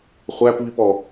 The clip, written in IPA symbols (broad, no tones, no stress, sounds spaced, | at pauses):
χʷ æ p β i p ɔ